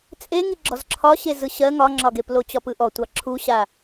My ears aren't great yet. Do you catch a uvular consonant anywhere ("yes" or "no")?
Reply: no